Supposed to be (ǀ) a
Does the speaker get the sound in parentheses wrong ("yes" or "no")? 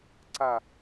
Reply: no